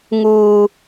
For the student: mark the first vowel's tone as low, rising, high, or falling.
high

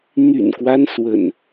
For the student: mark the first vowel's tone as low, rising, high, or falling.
low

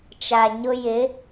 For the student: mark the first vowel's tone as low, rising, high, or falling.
low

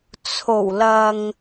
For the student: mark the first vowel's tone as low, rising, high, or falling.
low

